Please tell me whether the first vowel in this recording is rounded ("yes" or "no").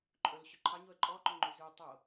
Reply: yes